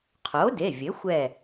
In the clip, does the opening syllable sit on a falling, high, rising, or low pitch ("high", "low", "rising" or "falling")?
rising